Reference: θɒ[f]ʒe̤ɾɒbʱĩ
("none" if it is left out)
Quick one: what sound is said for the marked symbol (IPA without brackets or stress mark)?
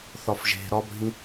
f